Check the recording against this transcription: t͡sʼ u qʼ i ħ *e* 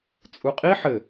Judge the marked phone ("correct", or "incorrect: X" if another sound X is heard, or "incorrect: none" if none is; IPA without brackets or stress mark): incorrect: ɘ